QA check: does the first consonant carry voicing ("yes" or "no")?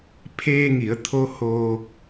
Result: no